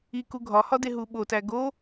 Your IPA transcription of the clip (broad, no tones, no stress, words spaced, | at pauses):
iku ɡʱɒhɒ deɦuɓotæ ɡo